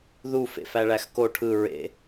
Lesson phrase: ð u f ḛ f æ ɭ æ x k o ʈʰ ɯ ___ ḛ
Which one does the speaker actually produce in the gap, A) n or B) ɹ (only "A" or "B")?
B